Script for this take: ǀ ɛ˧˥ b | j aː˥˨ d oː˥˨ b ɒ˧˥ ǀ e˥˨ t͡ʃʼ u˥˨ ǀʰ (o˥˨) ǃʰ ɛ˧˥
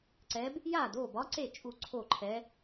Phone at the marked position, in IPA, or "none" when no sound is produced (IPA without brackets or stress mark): o˥˨